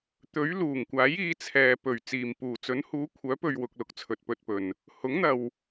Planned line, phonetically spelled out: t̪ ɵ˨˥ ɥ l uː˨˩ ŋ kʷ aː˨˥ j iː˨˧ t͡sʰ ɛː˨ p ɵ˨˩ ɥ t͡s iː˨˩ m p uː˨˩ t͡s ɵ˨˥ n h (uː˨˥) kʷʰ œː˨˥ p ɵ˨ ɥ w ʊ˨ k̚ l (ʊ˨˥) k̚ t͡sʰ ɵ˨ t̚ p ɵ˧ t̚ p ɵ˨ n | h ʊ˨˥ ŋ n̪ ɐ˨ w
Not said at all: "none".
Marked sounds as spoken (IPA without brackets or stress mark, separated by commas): uː˨˥, ʊ˨˥